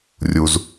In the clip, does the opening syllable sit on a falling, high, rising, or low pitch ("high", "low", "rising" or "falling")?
low